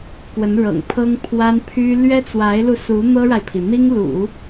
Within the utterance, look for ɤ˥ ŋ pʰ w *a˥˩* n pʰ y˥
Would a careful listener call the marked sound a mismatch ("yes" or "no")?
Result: yes